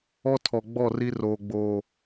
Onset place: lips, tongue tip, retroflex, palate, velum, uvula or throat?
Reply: tongue tip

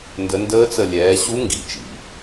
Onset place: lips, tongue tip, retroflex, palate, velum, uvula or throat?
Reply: tongue tip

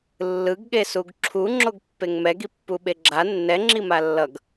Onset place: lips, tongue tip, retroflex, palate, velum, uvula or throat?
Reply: tongue tip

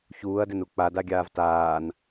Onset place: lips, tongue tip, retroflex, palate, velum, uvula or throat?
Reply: palate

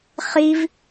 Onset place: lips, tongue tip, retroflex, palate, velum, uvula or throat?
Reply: uvula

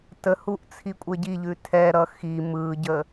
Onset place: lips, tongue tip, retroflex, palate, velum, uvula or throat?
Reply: tongue tip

